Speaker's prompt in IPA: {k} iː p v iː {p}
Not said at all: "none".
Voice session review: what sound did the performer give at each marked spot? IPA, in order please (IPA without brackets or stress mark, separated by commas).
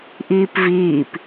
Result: ʔ, p